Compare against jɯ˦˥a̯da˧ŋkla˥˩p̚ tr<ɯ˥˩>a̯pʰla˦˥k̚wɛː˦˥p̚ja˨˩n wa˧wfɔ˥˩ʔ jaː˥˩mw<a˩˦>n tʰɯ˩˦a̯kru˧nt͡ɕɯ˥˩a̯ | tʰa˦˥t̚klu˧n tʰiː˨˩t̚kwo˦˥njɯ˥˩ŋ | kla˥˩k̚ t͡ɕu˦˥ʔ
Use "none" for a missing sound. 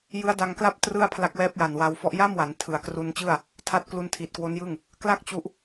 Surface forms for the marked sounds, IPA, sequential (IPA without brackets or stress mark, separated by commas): ɯ˥˩, a˩˦